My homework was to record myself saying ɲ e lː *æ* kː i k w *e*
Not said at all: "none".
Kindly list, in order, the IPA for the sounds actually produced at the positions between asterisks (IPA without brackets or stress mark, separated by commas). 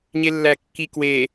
æ, e